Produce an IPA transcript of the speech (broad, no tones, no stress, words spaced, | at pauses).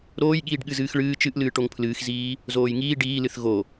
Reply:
ɾoːjɠiːɖ ɠɨzɨːxɭɨː t͡ʃɨʔlɨː ʈoŋpʰlɨːxziː | zoːjŋiː ɖiːlɨθ ɣo